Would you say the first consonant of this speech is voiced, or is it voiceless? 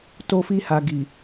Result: voiceless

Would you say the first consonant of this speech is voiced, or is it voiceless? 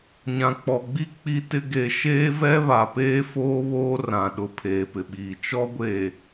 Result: voiced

